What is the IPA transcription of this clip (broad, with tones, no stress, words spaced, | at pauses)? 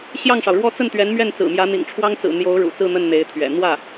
ɕjɑ˥˩ŋʂɑ˩ʊ̯ɻwɔ˥ t͡sə˥˩nt̪ɥɛ˧˥nmɥɛ˥˩n t͡sɹ̩˨˩mjä˧˥n̪ḭ˨˩ŋ ʈ͡ʂʰwɑ˥ŋt͡sɹ̩˨˩ n̪jo˧˥ʊ̯ ɻṵ˨˩t͡sɹ̩˥˧n̪ə˥˩n n̪e˧˥ɪ̯t̪ʰɥɛ̰˨˩ n̪wä˥˩